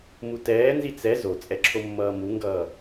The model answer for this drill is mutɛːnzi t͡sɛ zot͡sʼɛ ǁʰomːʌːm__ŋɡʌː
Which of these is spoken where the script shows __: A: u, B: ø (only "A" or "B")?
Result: A